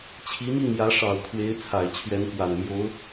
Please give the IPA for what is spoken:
t͡ɕʰ i˧˥ m i˥˩ ŋ j ä˧˥ ʂ ɑ˨˩ ʊ̯ kʰ w e˧˥ ɪ̯ t͡sʰ a˨˩ ɪ̯ t͡ɕʰ ɥ ɛ˧˥ n k w a˨˩ n m j o˧˥ ʊ̯

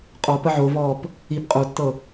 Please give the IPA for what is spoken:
qʼ ɔ p ə ʕ o v ɔː p | i p qʼ o tː ɤ

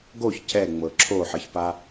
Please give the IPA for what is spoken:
ɡ o ç c ɛ ŋ͡m ɤ ǁʰ o ħ ʌ ç p a

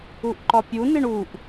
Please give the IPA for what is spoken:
u ʔ ǃ ɒ pʲ u n i ɳ u ʔ

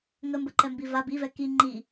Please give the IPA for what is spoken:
ŋ ə m b ə ǃ ɛ m b i v a b i v ɛ k i ŋ͡ǃ i

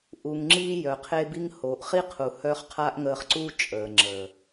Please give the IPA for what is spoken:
ʔ u˨ ŋ ŋ͡ǁ iː˧ j œ˨ qʰ e˦ b i˦ ŋ h oː˨ ʔ χ i˦ qʰ u˨ h œ˦ χ qʰ a˦ ʔ ŋ əː˧ χ ǀ u˦ t͡ʃʼ əː˨ ŋ͡ǁ əː˨

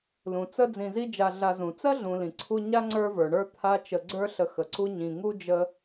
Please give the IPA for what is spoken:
l ũ˩ t͡s ə˦ d͡z ĩ˨ z i˦ d͡ʒ a˨ ɮ a˨ z ũ˩ t͡s ɜ˥ ɮ ũ˨ l ĩ˩ ǀʰ u˦ ɲ a˥ ŋ͡ǀ ə˞˦ v ə˞˩ ɳ ə˞˦ t̪ʰ a˦ t͡ʃ ə˨ ɡ͡ǀ ə˞˦ ɬ ə˨ x ə˩ ǀ u˦ ɲ ĩ˨ ŋ u˥ d͡ʒ ə˦

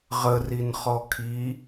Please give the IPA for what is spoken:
ʁ ə r i n χ ɔ kʰ i

